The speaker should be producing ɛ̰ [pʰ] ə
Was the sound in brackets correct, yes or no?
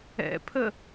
yes